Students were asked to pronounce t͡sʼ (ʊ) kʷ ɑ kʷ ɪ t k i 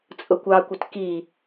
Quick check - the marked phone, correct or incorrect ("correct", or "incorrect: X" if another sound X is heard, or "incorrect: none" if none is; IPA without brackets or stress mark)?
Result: correct